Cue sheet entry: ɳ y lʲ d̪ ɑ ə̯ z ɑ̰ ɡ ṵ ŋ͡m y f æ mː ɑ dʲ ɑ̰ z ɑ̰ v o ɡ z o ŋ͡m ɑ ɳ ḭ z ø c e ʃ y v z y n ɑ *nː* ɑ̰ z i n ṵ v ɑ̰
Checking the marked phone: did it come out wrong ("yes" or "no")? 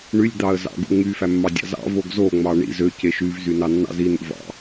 no